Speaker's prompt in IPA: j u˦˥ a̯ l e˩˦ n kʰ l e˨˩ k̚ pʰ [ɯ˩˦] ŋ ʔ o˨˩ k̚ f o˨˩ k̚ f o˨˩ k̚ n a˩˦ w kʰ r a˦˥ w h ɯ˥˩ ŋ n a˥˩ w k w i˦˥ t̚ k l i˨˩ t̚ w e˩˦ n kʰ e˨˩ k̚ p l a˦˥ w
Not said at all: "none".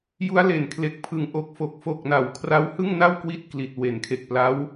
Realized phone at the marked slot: ɯ˨˩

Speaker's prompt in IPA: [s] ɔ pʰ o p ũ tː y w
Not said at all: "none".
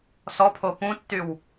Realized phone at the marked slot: s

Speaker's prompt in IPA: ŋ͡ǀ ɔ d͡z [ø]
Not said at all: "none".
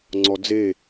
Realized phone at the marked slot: e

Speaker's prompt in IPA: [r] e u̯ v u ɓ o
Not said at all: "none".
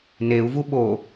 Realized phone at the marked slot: n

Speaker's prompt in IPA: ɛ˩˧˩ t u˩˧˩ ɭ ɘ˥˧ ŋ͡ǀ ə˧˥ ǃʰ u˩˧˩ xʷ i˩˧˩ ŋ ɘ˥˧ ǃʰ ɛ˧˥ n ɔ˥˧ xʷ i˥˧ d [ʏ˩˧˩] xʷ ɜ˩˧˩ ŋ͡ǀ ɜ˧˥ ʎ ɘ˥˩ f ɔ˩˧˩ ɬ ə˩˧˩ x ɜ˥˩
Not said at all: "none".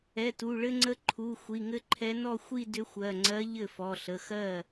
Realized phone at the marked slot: ʏ˧˥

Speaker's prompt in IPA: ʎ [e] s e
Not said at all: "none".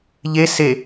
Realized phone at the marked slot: e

